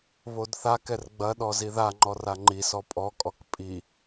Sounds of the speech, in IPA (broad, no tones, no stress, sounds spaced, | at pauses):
β o d θ a k ɛ r ɡ͡b ɐ ɗ ɔ z i ð a ŋ͡ǃ ɔ r a ŋ͡ǃ i s ɔ pʼ ɔ kʼ ɔ k pʼ i